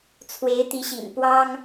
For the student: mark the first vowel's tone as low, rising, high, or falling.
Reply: rising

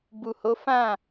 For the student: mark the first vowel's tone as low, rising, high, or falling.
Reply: low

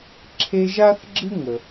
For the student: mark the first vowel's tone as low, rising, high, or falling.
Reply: high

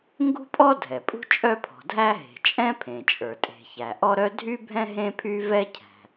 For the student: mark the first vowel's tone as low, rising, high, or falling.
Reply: high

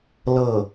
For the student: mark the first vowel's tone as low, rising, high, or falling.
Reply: falling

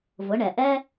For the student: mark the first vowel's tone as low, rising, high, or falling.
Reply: rising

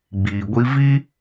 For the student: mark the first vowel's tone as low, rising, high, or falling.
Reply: low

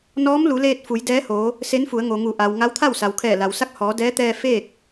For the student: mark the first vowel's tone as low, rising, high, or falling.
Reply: rising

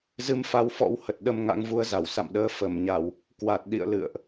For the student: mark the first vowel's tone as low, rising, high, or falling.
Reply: rising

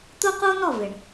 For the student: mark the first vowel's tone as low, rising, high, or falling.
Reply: high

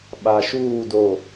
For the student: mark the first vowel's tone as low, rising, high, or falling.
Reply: low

